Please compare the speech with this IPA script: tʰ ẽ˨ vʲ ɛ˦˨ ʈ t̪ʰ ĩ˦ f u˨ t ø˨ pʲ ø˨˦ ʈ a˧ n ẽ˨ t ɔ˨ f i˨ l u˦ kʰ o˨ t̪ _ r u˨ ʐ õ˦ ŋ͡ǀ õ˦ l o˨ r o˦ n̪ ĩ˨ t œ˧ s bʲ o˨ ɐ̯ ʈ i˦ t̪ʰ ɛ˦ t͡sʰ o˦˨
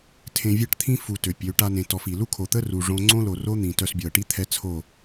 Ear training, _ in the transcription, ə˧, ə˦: ə˦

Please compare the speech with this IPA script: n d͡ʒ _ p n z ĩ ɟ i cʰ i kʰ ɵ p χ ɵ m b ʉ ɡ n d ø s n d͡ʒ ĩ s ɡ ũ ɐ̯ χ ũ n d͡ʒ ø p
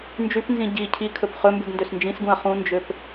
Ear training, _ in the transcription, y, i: y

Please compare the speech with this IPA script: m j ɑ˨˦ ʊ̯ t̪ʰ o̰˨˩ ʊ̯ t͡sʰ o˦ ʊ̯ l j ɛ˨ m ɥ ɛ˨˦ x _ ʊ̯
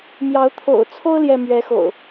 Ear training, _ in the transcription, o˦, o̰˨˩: o̰˨˩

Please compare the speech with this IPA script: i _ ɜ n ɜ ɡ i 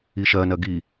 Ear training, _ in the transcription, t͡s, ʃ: ʃ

